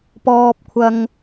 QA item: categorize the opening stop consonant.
plain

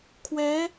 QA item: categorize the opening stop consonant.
aspirated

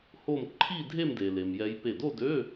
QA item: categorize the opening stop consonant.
click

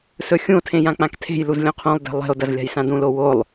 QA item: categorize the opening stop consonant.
aspirated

